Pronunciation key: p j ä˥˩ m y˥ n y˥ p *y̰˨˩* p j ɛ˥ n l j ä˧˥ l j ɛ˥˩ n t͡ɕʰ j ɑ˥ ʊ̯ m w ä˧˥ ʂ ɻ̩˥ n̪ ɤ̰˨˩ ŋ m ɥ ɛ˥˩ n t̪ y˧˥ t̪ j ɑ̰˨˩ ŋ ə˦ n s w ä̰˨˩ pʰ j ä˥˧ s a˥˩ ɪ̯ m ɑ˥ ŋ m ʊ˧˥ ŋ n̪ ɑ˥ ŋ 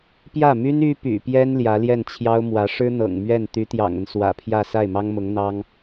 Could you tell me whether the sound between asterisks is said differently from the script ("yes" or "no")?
no